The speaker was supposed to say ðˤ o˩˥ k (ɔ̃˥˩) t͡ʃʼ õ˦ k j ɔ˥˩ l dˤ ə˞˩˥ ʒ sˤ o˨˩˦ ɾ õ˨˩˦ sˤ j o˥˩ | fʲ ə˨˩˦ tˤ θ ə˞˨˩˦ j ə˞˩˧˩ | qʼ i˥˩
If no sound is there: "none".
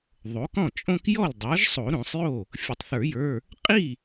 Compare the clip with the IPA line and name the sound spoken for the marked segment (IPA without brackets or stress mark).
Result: ɔ̃˥˩